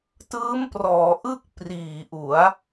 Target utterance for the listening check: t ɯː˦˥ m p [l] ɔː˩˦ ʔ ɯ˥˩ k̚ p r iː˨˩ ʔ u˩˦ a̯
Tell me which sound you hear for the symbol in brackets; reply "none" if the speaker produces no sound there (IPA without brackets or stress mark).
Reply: r